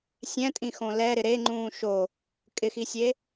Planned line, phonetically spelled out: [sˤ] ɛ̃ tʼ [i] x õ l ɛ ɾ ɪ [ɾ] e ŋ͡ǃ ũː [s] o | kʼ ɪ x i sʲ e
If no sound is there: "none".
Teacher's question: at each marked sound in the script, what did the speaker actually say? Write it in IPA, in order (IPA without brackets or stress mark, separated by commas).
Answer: sʲ, ĩ, ɾ, ʃ